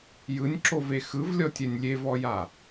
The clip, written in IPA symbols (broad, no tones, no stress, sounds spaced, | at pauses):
j ɯ nʲ ǁ o v e x ɯ v lʲ ɔ tʲ ɛ nʲ lʲ e v ɔ j a